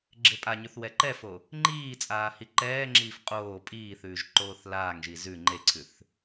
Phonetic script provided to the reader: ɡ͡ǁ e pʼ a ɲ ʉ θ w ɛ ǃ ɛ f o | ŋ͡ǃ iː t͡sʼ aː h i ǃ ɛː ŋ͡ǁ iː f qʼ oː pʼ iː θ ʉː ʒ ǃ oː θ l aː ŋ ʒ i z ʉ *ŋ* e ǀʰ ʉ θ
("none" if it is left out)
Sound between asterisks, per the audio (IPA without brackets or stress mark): ŋ͡ǃ